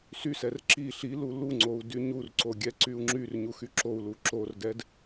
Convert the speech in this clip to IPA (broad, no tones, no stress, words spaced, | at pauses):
sysɛr ǁi ɬilu luŋ͡ǀou̯ dyɲurǀo ɡʲɛǀyu̯ŋ͡ǁyrɲu xyǁou̯lu ǁordɛd